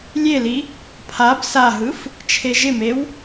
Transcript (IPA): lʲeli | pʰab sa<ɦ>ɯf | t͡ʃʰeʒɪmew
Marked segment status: correct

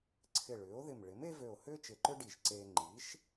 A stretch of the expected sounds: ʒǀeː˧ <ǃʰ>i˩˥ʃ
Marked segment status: incorrect: ŋ͡ǃ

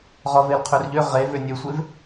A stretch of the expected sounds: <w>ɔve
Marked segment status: incorrect: ʁ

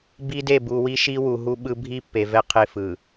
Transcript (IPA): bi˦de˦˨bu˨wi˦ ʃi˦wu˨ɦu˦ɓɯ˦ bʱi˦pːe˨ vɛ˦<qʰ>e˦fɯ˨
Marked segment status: correct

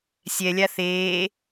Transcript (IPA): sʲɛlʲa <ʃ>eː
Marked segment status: incorrect: θ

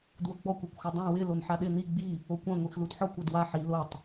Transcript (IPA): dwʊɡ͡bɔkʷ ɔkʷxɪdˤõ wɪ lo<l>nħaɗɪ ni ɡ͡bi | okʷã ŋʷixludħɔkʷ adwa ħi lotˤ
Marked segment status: incorrect: none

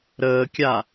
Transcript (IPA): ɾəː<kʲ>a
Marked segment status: correct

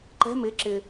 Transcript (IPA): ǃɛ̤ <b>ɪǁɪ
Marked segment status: incorrect: m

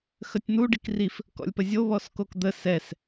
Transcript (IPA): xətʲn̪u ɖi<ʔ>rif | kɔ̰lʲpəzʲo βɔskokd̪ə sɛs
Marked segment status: incorrect: k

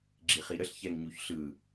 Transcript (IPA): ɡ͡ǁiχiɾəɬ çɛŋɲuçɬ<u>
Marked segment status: incorrect: ɯ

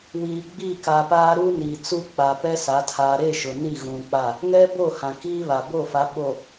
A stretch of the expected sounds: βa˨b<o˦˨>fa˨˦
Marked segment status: correct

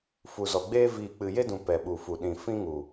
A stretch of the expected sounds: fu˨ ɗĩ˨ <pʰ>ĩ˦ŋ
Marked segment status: incorrect: f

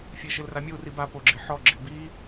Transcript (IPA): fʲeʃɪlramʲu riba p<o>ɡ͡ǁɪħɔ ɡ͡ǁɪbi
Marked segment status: correct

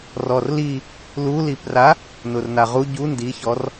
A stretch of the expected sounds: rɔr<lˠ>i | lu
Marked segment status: incorrect: l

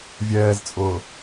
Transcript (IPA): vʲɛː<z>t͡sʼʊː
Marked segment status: correct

